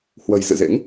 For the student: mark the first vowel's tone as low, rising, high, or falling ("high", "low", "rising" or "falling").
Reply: low